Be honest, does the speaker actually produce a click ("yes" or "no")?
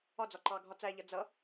yes